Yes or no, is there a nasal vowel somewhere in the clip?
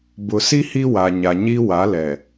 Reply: no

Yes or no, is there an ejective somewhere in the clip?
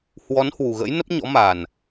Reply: no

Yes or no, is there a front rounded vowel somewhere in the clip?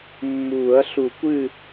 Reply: no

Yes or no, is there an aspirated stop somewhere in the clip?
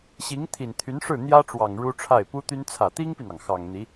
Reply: yes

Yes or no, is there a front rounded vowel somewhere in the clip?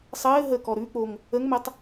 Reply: no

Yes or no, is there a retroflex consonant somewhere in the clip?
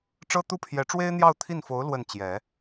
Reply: yes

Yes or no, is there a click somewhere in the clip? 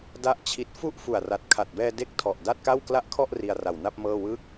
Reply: no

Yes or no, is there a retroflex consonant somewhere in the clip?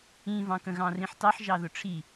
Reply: yes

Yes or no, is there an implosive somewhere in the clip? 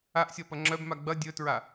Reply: no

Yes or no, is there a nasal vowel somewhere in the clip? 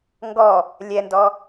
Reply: no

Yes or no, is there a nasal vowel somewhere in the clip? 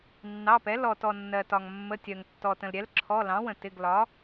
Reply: yes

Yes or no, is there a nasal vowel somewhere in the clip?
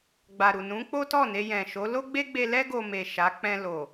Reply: yes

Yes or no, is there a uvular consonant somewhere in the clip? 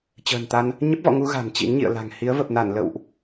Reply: no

